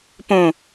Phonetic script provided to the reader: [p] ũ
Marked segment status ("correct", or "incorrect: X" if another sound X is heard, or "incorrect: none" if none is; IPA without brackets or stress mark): correct